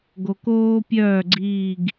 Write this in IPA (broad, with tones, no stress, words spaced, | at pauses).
ɡo˨koː˦pʲœː˦˨ ɡ͡ǀiː˦˨ɡ